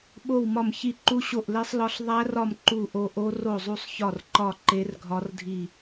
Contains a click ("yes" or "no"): yes